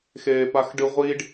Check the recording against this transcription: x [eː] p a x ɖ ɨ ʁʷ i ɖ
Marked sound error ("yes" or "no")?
no